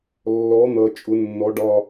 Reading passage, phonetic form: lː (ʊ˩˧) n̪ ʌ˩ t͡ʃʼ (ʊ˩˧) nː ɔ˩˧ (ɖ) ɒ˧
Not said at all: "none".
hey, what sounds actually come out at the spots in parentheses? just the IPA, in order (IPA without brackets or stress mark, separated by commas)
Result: ɔ˩˧, ʊ˩˧, ɖ